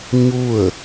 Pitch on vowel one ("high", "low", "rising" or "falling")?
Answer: falling